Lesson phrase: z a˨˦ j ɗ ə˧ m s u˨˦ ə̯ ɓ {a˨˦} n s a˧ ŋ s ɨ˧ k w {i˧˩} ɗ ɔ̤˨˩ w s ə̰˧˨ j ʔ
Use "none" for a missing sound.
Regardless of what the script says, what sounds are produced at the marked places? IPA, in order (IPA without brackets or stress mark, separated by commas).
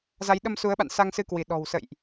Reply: a̰˧˨, i˧˩